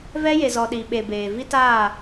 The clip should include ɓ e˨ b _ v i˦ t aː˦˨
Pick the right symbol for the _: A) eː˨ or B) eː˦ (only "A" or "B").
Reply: A